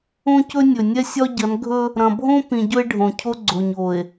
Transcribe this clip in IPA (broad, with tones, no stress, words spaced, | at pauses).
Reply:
õ˦cɵ˦ nʲɵ˨nʲɛ˦sʲɒ˦ ɟɐ˨˦nɡʱɵ˦ | ɾɐ̃˨bʱõ˦pĩ˨ ɟɵ˦e̯ɖʱõ˨cʰo˦ ɡ͡ǀo˨ɲo˨e̯